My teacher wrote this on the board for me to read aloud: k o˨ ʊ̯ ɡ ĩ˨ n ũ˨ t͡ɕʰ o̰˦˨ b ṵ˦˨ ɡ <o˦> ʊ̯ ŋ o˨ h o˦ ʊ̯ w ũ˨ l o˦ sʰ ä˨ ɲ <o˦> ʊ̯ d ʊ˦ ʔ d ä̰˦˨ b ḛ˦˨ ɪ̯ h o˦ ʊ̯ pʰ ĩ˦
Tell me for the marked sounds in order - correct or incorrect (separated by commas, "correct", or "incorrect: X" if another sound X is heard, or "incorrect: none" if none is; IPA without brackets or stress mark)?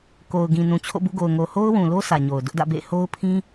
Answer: incorrect: o˨, incorrect: o˨